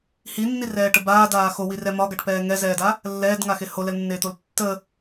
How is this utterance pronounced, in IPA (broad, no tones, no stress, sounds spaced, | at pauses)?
h i nː i r ɛː ʈ ə b aː d aː x o w i r ɛ m ɒ ɡ a ʈ p ɛː ŋ ɛ z ɛː d a | lː ɛː d ŋ a x e h o l ɛ l nː eː t̪ o l tː ə